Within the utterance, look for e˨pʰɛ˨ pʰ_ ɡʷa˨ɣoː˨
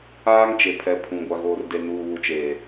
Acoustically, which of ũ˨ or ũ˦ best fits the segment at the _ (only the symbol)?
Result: ũ˨